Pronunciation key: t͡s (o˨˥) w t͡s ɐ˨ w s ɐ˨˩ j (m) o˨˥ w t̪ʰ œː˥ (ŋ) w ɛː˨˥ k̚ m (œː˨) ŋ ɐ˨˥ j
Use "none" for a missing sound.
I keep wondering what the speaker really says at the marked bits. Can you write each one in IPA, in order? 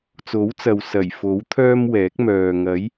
o˨˥, f, m, œː˨

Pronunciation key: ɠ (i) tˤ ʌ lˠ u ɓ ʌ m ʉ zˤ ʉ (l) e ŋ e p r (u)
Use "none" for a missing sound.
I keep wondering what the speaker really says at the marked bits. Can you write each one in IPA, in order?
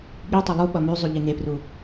i, ʎ, u

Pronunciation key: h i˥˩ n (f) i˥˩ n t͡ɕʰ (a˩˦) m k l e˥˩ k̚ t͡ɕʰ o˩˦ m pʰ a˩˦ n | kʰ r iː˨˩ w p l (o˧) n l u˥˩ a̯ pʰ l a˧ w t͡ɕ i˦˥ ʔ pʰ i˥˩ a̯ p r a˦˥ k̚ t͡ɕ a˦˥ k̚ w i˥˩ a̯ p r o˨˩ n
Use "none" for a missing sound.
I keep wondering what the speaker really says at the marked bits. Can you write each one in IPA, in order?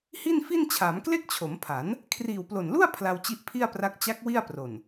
f, aː˩˦, o˨˩

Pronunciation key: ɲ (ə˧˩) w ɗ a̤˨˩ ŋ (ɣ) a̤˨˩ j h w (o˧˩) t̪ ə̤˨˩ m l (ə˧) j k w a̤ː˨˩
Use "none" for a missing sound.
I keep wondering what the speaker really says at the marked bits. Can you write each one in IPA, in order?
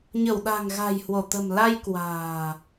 ə˧˩, ɣ, o˧˩, a˧

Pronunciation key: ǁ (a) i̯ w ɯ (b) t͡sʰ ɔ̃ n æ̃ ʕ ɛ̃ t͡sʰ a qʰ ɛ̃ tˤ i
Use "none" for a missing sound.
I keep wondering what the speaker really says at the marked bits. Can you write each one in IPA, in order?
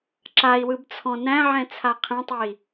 a, b

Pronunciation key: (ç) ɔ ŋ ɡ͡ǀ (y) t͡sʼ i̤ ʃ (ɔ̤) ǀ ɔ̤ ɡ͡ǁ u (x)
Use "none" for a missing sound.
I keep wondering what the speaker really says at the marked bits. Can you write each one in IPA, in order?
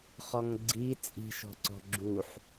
χ, i, ɔ̤, ħ

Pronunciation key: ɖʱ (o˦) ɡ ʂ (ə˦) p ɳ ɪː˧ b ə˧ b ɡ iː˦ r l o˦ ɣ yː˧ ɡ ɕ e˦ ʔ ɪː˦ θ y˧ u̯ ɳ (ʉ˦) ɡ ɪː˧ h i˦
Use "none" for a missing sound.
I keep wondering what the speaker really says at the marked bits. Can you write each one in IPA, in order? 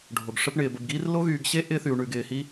o˧, ə˦, ʉ˧

